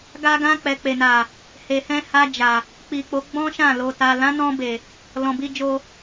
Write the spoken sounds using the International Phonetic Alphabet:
ɡ a˧ ɡ ã˧ k͡p ɛ˨ k͡p e˨ n a˨ | h e˨ h ɛ̃˧ h a˧ d͡ʒ a˨ | k͡p i˨ k͡p o˨˦ ɡ͡b ɔ̃˦ ʃ ã˦˨ l o˨ t a˨ l ã˨˦ n ɔ̃˧ b e˨ | l ɔ̃˨ b i˧ d͡ʒ o˧

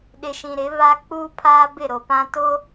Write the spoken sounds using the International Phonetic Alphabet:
ɗ ɪ˨ ʃ ĩ˨ ɾ ɪ˨˦ β a˦ k͡p uː˦ pʰ aː˦ b ɪ˦˨ ɾ o˨ p ã˦ t o˦

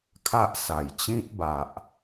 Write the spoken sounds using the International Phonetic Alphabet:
kʰ a˦ ʔ s a˨˩ j t͡ɕ ĩ˦ t̚ b a˨ ʔ

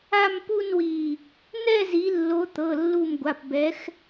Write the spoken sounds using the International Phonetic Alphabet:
a˥˧ m p u˥˧ n w i˧˩ | n̪ ɛ˥˧ z i˨˦ lː o˨˦ t̪ ɤ˩˧˩ lː u˧˩ m ɡʷ a˩˧˩ p b ɛ˨˦ x

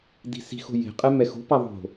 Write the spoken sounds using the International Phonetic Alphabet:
d i̤ s i̤ x o̤ j e̤ qʼ ɛ m ɛ x o̤ p a ðˤ o̤

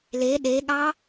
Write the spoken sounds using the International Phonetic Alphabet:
l e ɗ e ɠ ɑ

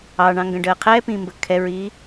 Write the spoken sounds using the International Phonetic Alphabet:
ɑ ɳ ɑ̃ ŋ ɡ ə̃ ɖ əː qʰ ɛ p ĩː m b ə kʰ ɛ ɹ i

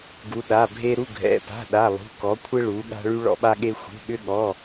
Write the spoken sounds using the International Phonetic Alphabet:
ɡ u˧˥ ɗ a˧˥˧ bʱ e˥ ɾ u˧˥˧ ɡʱ ɛ̰˧˥˧ p a̤˧˥˧ ɗ a˧˥˧ lˠ ṳ˧˥˧ k ɔ˧˥ kʷʰ ɪ˥ ɭ u˧˥ ɠ a̤˥ ɭ y˥ ɭ ɔ̰˥ ɓ a˥ ɠ e˥ xʷ e̤˧˥˧ ɠ ʏ˥ ɠ ɔ˧˥˧

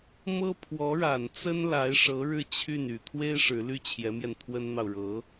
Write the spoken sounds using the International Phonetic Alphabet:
m ɤ˥ pʰ w ɔ˧˥ ɻ a˨˩ n t͡s ə˥ n l a˧˥ ɪ̯ ʂ ɤ˧˥ ɻ ɻ̩˥˧ t͡ɕʰ y˥˩ n y˨˩ t̪ʰ w e˥ ɪ̯ ʂ ɻ̩˧˥ l y˥˩ t͡ɕʰ j ɛ˧˥ m j ɛ˧ n t̪ʰ w ə˥ n n̪ ɑ˨ ʊ̯ ɻ ɤ˧˥

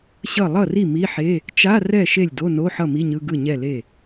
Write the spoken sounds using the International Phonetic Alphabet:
ɕ ʌ˥˩ lˠ ʌ˥˩ r i˥˩ m i˧˥˧ ħ e˧˥˧ | t͡ʃ a˧˥˧ r ɛ˥˩ ʃ e˥˩ lʲ d o˧˥˧ n o˧˥˧ ħ ʌ˥˩ m i˧˥˧ ɲ ɯ˧˥˧ ɡ ɯ˥˩ ɲ ɛ˥˩ l e˥˩

